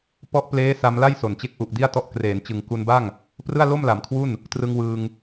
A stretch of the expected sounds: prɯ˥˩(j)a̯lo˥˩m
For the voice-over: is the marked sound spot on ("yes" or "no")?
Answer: no